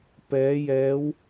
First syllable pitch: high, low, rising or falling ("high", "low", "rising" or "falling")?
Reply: rising